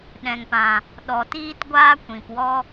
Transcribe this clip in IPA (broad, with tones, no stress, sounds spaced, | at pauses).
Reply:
ɗ ɛ̃˨ ŋ p ã˨ | ɗ ɔ˨ t iː˦ t ɡʷ aː˦ kʷ ĩ˨ p w ɔ˦